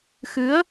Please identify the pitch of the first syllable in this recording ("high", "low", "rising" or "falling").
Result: rising